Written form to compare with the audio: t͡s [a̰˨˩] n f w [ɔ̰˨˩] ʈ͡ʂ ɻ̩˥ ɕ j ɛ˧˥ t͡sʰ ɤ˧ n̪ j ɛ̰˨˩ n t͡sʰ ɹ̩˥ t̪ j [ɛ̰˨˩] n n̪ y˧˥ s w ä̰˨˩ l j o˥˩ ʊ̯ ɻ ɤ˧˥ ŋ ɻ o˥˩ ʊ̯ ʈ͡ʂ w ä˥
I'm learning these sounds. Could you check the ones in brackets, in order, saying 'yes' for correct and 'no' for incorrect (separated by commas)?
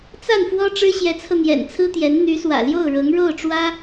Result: no, no, no